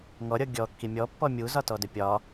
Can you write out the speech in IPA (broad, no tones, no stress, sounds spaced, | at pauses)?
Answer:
ŋ ɔ ɾʲ ɔ ɡʲ ɔ kː i mʲ ɔ pː ɔ mʲ u z ɒ t ɔ d ɵ pʲ ɒ